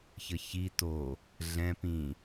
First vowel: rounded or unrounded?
unrounded